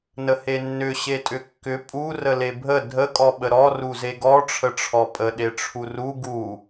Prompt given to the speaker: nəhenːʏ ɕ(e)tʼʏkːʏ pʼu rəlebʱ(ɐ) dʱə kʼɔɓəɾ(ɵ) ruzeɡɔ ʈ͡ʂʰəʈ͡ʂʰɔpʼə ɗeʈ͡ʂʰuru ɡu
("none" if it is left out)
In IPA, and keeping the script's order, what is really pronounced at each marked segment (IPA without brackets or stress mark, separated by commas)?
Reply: e, ə, ɔ